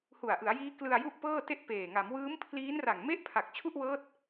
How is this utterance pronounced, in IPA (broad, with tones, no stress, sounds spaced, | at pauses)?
h u˨˩ a̯ ʔ ɯ˩˦ a̯ j iː˦˥ k l ɯ˧ a̯ j u˥˩ ʔ p ɤː˥˩ t e˥˩ ʔ p eː˨˩ ŋ a˩˦ m w ɯː˦˥ m pʰ l iː˦˥ n r a˨˩ ŋ m e˦˥ ʔ pʰ a˨˩ k̚ t͡ɕʰ u˥˩ ʔ w ɤː˦˥ t̚